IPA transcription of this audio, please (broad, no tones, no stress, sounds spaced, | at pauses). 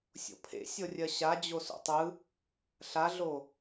sʲ o̰ pʰ ḛ sʲ ɤ rʲ ɜ ɕ a d͡ʑ o s o̰ tˤ ɯ | ɬ a ɮ o